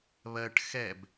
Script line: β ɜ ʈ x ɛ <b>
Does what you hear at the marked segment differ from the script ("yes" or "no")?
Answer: no